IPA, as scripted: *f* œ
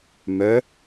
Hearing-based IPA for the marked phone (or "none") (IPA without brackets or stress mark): m